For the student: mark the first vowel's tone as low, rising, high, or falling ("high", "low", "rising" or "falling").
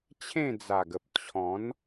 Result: falling